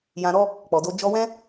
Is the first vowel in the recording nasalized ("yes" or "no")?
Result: yes